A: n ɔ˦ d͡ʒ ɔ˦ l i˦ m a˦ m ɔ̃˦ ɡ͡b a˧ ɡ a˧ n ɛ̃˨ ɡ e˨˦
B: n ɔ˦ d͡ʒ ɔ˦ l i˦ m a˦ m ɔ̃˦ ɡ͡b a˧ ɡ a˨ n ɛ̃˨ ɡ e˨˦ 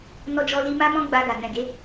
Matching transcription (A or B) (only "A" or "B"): B